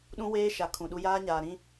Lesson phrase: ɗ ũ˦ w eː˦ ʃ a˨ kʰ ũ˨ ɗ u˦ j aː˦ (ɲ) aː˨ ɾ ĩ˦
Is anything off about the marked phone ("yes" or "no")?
no